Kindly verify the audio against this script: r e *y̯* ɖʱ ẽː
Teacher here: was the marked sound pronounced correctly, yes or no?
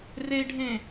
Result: no